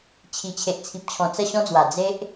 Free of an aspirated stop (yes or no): no